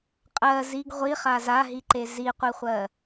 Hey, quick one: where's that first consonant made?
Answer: uvula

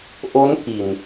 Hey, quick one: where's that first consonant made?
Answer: throat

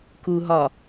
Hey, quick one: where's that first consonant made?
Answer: velum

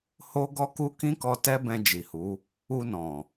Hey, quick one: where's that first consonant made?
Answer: throat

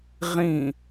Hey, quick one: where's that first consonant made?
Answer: uvula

